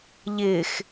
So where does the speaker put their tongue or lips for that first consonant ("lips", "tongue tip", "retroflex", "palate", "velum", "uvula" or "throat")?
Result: palate